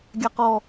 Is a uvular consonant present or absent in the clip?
present